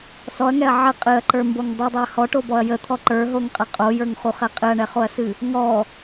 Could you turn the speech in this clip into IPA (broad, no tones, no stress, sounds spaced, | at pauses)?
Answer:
s ɔ ɐ̯ ŋ ɛ ɐ̯ ʕ ə qʼ ɨ ɐ̯ ǃ ə˞ m b o ŋ dˤ u dˤ ɛ ɐ̯ h ɔ ʈ o b ɔ ɐ̯ j ə t̪ʰ ɔ ǃ ə˞ ɦ o ŋ qʼ ə qʼ o j ə˞ ŋ χ u χ ɛ qʼ ɨ ɐ̯ ɳ ɛ χ o ɐ̯ s ɨ | ŋ ɔ